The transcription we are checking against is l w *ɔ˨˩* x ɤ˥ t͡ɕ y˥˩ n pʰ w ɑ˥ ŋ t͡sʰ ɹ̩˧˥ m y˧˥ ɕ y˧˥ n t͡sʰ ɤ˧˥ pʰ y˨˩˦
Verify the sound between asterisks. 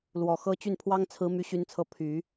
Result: correct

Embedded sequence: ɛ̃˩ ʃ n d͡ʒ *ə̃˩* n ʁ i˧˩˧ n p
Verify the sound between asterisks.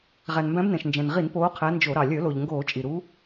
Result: incorrect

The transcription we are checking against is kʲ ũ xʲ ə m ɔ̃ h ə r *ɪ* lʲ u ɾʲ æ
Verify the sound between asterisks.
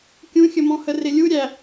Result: correct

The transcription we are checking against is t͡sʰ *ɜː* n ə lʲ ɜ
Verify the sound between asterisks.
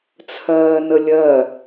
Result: correct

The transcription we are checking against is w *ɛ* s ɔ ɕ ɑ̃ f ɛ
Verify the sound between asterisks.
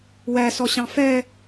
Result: incorrect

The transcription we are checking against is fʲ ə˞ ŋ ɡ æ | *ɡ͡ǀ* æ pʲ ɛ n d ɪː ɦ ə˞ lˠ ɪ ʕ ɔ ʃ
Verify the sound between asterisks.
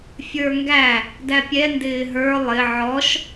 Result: incorrect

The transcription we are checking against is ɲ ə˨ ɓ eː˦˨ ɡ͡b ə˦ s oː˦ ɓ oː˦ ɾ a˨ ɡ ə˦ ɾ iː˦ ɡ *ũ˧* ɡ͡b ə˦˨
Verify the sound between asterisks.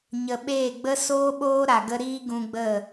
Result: correct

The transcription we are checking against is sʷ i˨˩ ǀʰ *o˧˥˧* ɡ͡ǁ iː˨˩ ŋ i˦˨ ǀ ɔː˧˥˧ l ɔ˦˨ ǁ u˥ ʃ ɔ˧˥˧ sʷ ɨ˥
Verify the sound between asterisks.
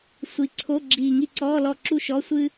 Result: correct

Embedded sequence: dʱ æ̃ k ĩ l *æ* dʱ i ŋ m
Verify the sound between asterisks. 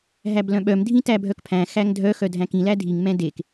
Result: correct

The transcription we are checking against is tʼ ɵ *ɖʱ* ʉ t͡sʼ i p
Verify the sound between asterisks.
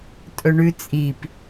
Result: incorrect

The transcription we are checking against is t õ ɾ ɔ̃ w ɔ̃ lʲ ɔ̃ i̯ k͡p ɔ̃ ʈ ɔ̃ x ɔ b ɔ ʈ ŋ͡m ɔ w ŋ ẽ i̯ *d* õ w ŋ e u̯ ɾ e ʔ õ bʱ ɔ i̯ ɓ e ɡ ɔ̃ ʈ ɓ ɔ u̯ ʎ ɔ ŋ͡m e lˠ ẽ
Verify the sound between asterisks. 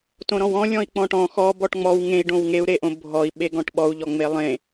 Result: incorrect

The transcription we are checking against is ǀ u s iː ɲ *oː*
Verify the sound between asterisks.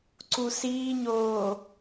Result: correct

